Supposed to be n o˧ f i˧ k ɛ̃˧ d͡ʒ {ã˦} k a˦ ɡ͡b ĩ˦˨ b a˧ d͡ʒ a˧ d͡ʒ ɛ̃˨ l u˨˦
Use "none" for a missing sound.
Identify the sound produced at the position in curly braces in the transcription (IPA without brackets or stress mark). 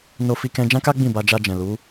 ã˦